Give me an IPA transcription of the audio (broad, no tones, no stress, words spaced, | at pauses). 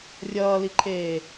rʲʌːliǃʰeː